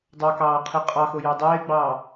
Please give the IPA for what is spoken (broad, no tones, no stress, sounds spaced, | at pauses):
dˤ ɑ k ɑː qʰ e qʼ ɑ x o j ɑ dˤ eː ɡ͡b ɑː